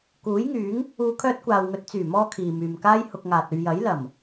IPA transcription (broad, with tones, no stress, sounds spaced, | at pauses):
k uː˨˥ j ŋ yː˨˥ ŋ | uː˧ kʰ œː˥ t̚ kʷ aː˨ w ŋ ɵ˧ t̚ t͡s yː˨˩ m ɔː˧ kʰ iː˨ m yː˨ m k aː˥ j h ʊ˧ k̚ ŋ aː˨ t̚ ɵ˧ ɥ j ɐ˨˥ j l ɐ˨˩ m